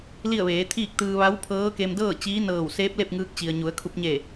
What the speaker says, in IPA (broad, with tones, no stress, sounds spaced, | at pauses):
l i˥˨ ə̯ ʋ eː˩˧ t̪ʰ iː˥˨ k̚ t̪ ɯː˧ ʋ a˧˥ w pʰ ɤː˧˥ k e˧ m d ɤː˥˨ t͡ɕ iː˧˥ n ɤː˧˩ w s eː˧˥ p̚ l e˥˨ p̚ ŋ ɯː˧ k̚ t͡ɕ i˩ ə̯ ɲ u˩˧ ə̯ kʰ u˧ p̚ ɲ e˧˩